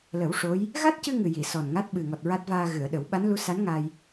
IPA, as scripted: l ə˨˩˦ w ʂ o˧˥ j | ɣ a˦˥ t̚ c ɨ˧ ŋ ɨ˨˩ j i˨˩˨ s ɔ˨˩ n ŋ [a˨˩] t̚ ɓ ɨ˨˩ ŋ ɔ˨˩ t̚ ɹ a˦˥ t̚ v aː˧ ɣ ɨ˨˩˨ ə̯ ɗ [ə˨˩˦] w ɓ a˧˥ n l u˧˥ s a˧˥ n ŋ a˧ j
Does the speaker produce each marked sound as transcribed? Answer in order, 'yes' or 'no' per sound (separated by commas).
no, yes